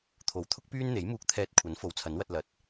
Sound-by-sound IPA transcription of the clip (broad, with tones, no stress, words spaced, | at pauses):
t̪ʰo˨˥wt̪ʰʊ˥k̚pyː˥nn̪e˨˥j muː˧k̚t̪ʰɛː˧t̚kʷʰɐ˨˥n fo˨˥wt͡sʰɐ˨˥nwɐ˧t̚lɐ˨˥t̚